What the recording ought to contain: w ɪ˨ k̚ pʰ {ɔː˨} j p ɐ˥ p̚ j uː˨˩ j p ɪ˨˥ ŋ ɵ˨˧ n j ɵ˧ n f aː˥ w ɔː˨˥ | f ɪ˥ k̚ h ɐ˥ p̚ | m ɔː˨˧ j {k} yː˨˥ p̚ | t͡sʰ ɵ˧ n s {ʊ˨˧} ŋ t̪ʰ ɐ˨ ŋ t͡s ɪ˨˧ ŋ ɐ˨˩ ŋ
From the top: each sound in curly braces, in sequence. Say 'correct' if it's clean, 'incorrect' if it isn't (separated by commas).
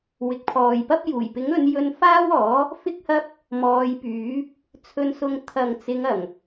correct, incorrect, incorrect